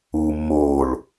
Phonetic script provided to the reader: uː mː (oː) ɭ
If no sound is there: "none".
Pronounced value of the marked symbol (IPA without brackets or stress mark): oː